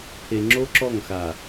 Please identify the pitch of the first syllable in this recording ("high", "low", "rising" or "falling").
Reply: low